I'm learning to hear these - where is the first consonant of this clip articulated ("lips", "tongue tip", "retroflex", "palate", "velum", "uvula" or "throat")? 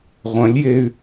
uvula